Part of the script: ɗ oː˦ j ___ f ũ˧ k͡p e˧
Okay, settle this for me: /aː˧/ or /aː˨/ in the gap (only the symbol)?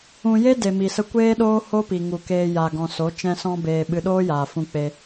aː˨